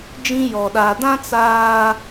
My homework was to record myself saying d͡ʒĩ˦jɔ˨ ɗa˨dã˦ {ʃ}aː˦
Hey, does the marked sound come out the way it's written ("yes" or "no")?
no